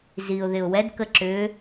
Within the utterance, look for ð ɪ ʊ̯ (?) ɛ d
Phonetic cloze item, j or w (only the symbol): w